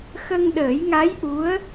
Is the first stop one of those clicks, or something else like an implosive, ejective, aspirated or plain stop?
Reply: implosive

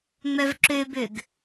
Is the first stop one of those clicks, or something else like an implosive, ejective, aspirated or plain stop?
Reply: click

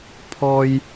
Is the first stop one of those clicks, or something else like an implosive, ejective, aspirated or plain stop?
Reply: aspirated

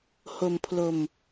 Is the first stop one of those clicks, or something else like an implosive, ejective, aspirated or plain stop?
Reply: aspirated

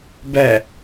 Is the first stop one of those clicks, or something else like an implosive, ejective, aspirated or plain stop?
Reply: plain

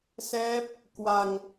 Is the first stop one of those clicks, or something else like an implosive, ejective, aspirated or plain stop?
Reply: plain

